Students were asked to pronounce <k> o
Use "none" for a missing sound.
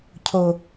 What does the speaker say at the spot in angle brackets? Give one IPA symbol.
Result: cʰ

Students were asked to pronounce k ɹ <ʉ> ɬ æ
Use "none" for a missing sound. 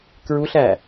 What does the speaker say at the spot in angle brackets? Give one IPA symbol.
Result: u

